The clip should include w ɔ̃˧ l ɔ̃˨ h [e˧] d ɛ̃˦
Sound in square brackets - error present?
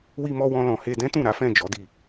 no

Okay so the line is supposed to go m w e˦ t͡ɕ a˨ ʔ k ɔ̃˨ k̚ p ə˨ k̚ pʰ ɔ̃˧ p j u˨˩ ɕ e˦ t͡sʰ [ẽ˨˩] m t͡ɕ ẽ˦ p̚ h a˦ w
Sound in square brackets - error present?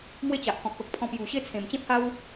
no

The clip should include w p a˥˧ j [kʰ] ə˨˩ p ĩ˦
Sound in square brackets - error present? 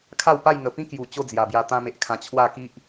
yes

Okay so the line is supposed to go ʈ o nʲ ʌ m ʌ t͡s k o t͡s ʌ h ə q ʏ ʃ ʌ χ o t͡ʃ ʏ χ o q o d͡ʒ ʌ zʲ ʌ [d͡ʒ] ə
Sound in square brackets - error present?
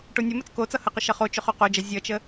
yes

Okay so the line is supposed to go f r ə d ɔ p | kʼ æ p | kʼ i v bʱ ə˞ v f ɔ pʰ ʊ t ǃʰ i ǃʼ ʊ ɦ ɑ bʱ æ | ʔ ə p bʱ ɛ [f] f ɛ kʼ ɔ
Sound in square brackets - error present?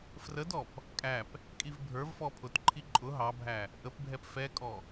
yes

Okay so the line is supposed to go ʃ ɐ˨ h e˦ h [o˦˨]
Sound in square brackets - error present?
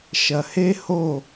no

